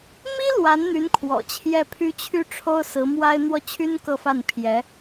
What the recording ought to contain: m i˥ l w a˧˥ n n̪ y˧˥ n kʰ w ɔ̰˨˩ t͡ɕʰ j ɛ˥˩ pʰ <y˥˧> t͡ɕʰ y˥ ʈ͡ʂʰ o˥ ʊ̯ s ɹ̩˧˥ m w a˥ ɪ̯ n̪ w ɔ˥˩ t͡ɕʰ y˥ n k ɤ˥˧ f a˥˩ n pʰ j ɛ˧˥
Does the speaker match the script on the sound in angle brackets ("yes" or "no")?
no